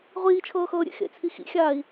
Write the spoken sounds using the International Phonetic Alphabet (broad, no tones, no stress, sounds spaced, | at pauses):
ʁʷ iː t͡ʃʰ ɤː x ɤː ɾʲ ḛ x ḛ t͡sʰ i x ḭ xʲ aː i̯